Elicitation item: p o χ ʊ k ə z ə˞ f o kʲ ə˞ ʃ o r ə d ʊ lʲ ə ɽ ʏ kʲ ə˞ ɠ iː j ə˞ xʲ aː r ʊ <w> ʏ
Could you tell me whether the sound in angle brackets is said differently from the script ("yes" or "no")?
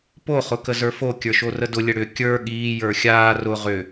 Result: yes